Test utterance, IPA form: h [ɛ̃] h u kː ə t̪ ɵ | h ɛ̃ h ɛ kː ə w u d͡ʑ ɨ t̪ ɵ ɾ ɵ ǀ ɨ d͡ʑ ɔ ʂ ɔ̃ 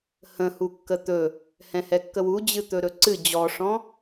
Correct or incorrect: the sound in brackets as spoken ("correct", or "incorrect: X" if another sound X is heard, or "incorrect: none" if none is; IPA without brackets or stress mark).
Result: incorrect: ə̃